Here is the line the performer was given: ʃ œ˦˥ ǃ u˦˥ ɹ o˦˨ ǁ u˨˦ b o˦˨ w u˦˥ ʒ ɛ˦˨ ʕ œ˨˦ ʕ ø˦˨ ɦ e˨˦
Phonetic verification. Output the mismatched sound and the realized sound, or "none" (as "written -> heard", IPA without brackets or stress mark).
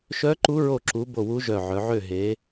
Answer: ɛ˦˨ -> œ˦˨